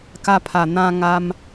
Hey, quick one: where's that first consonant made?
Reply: velum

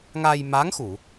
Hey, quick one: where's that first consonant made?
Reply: velum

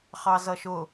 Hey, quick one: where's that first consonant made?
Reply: uvula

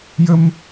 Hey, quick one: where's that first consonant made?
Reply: palate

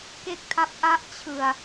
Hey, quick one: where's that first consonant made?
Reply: velum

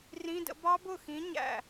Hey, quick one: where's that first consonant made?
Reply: tongue tip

